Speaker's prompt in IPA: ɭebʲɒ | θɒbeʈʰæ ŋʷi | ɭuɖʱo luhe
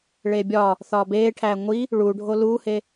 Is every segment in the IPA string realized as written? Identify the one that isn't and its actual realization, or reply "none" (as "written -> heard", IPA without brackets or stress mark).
none